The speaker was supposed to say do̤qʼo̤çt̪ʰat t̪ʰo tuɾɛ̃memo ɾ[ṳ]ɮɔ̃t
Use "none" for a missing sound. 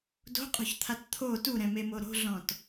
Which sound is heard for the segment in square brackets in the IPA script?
o̤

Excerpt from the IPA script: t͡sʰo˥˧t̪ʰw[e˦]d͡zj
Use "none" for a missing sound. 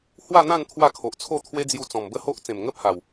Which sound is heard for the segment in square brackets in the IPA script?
e˦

